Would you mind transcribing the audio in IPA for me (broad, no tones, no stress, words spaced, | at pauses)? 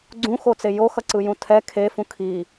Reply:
ɡ͡ǀũxot͡se joxʌǀɯjũ tʰɛ kʰefũ kʰi